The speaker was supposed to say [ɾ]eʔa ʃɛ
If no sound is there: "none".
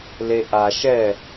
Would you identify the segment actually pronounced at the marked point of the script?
l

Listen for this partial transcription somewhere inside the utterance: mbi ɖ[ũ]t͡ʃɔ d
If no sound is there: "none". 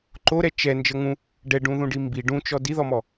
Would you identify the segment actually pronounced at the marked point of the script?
ũ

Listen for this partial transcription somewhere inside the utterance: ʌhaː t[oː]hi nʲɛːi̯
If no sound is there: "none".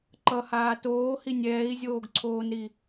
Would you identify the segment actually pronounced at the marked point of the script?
oː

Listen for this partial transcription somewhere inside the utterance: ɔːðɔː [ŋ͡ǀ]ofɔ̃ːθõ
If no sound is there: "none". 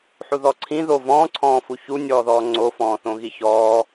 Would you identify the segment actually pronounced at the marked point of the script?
ŋ͡ǀ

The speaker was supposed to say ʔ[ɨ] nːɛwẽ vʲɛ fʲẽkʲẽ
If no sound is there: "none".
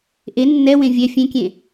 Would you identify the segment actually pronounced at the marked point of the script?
e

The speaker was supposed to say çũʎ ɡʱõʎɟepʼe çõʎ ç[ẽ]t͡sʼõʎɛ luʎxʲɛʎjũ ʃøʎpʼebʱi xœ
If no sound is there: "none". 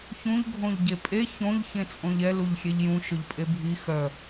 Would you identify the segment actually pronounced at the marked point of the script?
ẽ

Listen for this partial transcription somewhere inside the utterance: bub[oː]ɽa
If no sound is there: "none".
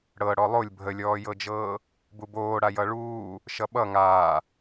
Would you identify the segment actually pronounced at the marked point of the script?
oː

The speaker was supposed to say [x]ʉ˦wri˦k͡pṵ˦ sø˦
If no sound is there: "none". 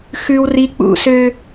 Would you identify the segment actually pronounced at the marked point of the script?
x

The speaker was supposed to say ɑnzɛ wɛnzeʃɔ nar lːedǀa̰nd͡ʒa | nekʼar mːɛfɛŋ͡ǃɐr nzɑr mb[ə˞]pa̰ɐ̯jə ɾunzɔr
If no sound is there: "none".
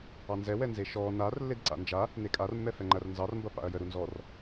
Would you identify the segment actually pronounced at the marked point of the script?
ɐ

